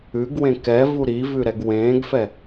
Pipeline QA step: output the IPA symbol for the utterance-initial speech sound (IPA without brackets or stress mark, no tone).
ʉ